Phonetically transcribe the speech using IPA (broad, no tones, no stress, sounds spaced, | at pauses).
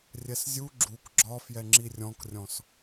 rʲ ɛ s zʲ u ɡ͡ǁ u k ɡ͡ǁ ɒ f j ɛ ŋ͡ǁ i rʲ ɔ̃ k rʲ ɔ̃ s